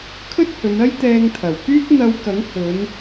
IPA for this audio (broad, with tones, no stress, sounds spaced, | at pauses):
kʰ ɵ˥ t̚ h ɵ˨˧ n ɐ˥ j t̪ ɛː˧ ŋ t̪ʰ ɐ˨˩ w k yː˥ k̚ n̪ ɐ˧ w k ɐ˨˥ ŋ h ɵ˨˧ n